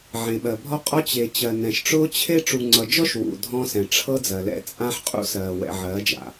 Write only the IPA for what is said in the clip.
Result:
ʕẽ˨ɓɜ˨bʱɔ˦qʼɔ˦ t͡ɕe˨t͡ɕɜ˨ nɛ̃˨ʃʈ͡ʂʊː˦t͡ɕʰe˦ ʈ͡ʂu˨ŋ͡ǀʌ˨d͡ʒɔ˦ʃ wṵ˨ dʱɔ̃ː˦sɛ̃˨ ʈ͡ʂʰɤ˦ d͡zɜ˨lɛ̰˦ t͡sʼã˦ħqʼṵ˦sɜː˨ wɛ̰˨ʕɜː˨˦d͡ʒa̰˨

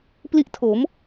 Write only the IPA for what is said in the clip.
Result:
pli˦˥ʔ tʰo˩˦m

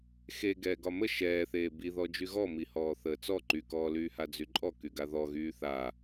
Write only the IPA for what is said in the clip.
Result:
xe ɡɛːɡɒmə ʃɛːθeː biðɔ d͡ʒyɣɔmihɔː θəːt͡sɔ ǃykɔːlyːha d͡zyǃʼɔ kyɡaðɔ ɣyːθa

